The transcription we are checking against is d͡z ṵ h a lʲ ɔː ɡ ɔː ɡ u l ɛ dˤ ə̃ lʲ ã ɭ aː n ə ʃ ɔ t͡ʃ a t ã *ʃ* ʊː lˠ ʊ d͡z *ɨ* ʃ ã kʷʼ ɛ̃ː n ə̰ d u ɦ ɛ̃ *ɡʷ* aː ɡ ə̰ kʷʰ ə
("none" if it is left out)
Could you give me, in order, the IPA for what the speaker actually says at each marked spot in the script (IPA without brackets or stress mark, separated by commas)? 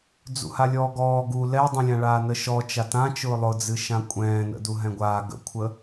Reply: t͡ʃ, ɨ, ɡʷ